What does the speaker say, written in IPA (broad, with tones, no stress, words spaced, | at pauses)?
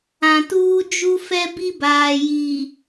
ã˨tuː˦ d͡ʒu˦ fɛ˦bi˦baː˨ ji˨